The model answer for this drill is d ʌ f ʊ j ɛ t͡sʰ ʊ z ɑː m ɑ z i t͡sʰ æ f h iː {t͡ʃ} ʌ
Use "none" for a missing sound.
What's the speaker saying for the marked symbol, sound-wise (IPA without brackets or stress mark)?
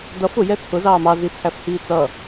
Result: t͡s